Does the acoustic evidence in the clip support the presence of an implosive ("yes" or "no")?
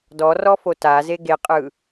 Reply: no